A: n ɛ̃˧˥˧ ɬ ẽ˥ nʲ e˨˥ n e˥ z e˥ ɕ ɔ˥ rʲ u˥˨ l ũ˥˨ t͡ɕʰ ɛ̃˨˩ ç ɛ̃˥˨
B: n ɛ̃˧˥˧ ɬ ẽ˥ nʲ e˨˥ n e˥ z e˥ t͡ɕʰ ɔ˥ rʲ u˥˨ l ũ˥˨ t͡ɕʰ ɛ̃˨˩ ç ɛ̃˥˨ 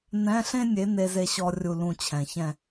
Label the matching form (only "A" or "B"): A